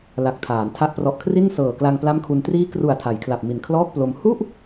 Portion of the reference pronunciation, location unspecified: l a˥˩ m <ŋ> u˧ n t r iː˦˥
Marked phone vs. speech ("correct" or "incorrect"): incorrect